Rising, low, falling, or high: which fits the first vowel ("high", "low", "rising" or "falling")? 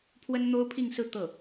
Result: high